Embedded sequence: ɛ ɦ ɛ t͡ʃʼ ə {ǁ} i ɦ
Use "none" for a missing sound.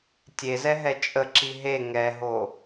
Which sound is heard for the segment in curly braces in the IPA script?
ǁ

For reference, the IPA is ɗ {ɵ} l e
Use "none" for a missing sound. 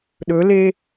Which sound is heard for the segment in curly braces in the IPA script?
ɵ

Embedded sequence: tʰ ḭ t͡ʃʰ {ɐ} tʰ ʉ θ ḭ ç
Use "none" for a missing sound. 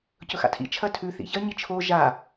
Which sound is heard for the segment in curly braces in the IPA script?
ɐ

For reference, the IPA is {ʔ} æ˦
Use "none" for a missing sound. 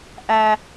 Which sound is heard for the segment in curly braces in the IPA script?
ʔ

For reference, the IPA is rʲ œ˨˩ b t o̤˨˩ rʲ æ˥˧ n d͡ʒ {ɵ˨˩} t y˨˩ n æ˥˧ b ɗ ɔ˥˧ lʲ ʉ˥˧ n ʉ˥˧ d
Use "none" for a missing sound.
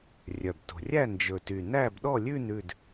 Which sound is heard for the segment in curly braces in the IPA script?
ɵ˨˩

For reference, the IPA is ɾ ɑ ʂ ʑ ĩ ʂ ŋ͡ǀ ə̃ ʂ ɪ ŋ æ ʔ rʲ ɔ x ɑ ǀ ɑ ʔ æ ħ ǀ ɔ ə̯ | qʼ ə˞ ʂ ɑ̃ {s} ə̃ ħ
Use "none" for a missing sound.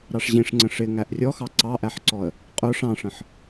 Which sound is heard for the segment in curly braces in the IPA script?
ʂ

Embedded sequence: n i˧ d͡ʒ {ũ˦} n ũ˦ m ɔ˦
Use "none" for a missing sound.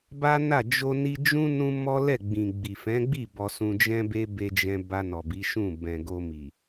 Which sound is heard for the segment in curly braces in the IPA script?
ũ˦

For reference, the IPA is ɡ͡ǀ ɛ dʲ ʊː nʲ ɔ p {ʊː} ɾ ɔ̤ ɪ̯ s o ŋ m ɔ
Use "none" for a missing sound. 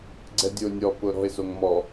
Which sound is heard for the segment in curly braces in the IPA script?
ʊː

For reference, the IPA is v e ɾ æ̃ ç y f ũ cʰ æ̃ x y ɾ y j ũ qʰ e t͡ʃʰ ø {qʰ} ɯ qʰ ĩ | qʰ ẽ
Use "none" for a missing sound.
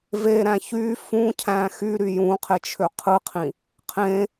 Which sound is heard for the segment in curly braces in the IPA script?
qʰ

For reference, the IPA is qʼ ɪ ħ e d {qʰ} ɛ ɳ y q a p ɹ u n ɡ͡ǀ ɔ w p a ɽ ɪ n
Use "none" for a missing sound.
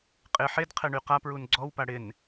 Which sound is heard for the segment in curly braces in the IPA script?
qʰ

